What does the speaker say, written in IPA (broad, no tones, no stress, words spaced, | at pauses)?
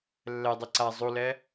lːɛdˤi ǀa zˤulɛ